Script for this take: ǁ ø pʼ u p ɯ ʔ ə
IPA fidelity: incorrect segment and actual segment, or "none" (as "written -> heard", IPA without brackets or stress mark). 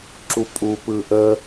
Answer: ø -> u